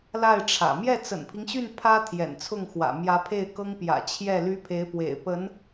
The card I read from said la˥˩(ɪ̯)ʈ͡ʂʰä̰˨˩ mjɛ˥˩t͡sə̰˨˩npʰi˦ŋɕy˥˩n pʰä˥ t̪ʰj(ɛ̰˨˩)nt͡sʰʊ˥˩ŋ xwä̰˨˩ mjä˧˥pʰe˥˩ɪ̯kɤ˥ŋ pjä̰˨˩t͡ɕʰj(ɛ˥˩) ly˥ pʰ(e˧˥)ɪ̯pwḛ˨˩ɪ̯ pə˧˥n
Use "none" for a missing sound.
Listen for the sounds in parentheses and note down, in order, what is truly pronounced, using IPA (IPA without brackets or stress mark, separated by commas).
ɪ̯, ɛ̰˨˩, ɛ˥˩, e˧˥